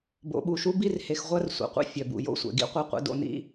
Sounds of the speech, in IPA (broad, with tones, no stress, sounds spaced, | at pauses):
b o̰˨ ɓ u˨ ʃ u˦ b i˦ r h e˨ x ʁʷ ɜ˦ r sʷ ɛ̰˨ qʷ ḭ˦ fʲ œ˨ b ṵ˨ j o̰˦ sʷ ɛ̰˨ ɡ ḭ˦ qʷ i˦˨ qʷ ɛ̰˦ d o̰˦ n ḭ˦